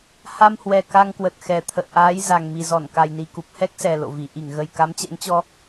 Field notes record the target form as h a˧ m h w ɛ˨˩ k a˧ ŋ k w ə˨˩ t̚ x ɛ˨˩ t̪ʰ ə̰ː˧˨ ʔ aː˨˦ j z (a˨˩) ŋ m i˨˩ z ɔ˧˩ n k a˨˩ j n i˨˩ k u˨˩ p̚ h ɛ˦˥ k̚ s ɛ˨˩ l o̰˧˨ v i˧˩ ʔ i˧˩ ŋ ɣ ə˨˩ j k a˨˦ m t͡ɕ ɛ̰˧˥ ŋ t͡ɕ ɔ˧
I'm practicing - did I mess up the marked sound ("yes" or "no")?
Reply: no